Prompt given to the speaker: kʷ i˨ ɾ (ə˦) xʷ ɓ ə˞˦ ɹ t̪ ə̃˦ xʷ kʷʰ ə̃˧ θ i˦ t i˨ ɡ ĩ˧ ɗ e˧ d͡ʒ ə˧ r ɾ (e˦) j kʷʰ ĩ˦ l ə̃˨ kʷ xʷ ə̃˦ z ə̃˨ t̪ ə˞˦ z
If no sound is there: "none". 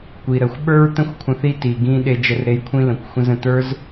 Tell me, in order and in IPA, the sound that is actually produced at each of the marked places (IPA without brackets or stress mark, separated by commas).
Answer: ə˨, e˧